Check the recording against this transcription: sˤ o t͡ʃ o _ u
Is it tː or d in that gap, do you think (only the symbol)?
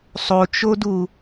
d